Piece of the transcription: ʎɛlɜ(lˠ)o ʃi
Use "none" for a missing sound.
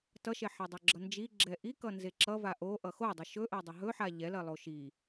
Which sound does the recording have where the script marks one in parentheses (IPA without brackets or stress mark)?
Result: lˠ